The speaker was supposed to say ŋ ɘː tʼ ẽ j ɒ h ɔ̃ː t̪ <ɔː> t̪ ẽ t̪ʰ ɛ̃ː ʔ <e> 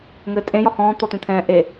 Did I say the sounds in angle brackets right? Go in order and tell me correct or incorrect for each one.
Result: incorrect: ɔ, correct

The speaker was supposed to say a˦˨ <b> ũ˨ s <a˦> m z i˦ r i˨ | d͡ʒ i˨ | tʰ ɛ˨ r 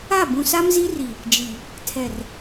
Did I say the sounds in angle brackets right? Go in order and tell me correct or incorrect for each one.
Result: correct, correct

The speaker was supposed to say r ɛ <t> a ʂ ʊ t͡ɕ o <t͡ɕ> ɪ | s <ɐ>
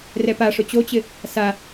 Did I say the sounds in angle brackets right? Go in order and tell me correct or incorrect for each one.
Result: incorrect: p, correct, incorrect: a

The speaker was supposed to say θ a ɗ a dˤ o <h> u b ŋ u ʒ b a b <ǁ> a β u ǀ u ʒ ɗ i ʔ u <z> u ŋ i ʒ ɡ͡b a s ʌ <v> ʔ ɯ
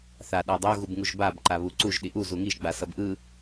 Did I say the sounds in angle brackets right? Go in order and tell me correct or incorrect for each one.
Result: incorrect: ɣ, incorrect: ǃ, correct, incorrect: b

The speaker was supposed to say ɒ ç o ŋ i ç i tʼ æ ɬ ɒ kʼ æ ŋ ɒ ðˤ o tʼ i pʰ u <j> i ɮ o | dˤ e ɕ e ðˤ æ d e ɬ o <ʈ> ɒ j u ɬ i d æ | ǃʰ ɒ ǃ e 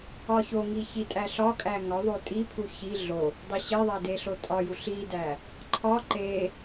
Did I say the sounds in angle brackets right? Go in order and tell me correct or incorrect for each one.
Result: incorrect: ç, incorrect: tʼ

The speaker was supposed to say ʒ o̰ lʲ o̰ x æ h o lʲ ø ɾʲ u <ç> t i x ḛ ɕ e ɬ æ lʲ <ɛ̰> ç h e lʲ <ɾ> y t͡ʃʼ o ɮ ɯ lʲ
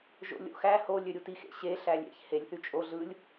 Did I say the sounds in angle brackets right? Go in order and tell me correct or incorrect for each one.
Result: incorrect: none, incorrect: ḛ, incorrect: θ

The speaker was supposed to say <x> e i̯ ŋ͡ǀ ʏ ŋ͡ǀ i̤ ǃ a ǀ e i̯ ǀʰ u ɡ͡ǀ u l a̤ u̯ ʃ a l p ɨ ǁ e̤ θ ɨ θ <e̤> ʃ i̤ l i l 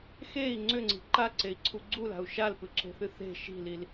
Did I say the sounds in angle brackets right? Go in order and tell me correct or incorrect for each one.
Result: correct, correct

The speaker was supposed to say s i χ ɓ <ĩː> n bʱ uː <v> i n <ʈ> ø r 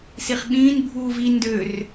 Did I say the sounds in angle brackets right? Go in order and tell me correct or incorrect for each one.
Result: correct, correct, incorrect: d

